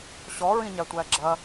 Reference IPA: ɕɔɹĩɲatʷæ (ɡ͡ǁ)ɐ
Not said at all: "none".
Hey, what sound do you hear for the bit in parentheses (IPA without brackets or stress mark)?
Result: ɡ͡ǁ